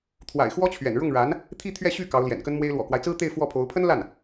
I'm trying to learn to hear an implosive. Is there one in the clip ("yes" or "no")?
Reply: no